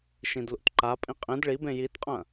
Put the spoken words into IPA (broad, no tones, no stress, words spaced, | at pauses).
ʃĩdlṵtǃapʼĩ qʼĩd ɭibẽ jitqʼɐ̃